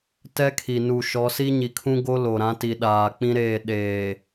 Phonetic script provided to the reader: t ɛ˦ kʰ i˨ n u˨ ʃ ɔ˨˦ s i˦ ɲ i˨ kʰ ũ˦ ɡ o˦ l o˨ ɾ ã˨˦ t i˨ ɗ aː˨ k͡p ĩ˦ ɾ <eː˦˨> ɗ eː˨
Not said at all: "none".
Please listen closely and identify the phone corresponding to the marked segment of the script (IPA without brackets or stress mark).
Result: eː˦˨